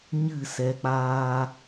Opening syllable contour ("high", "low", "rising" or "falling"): falling